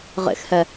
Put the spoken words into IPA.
ʁ ḛ x h ɛ

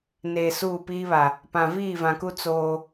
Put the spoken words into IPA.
n eː˨ s uː˦˨ p iː˦ β a˨ | p ã˨ v iː˦˨ v ã˨ k u˦ t͡s oː˦

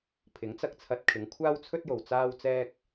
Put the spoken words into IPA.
pʰ ɪ˨˥ ŋ t͡s ɐ˧ k̚ t͡sʰ ɐ˧ t̚ kʰ ɪ˨˧ ŋ kʷʰ aː˥ w t͡sʰ ɵ˥ t̚ j o˨ w t͡s aː˥ w t͡s ɛː˥ k̚

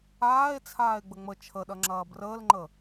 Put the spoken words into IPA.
aː e̯ t͡sʰ aː e̯ ɡ͡b ə ŋ͡m ə t͡ʃʰ ə ɗ ɐ ŋ͡ǁ ɐː b r əː l ŋ͡ǃ ə

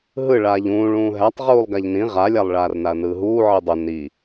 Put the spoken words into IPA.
ɦ ɯ ɭ aː ʎ ũː ɭ ũː ɦ æ tˤ ʁ uː lˠ ɡ a ʎ n ĩ ʁ a lʲ a lˠ ɭ aː r n a ɐ̯ n ɯː ɦ uː ʕ i dˤ ʊ n i

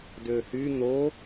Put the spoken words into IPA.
d ø h y n̪ o

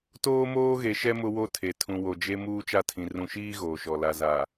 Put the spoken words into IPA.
t oː˦ m oː˦ ɣ e˨ ʃ ɛ˦ m ʊ˦ w o˦ tʰ e˨ tʰ ũ˨ w o˨ d͡ʒ e˦ m uː˦ t͡ʃ a˦˨ tʰ ĩ˨ r ũ˨ ʃ iː˦ ɣ oː˨ ʃ ɔ˨ l a˨ z a˨

